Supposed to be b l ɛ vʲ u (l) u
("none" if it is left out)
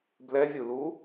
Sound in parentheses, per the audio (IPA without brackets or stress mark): l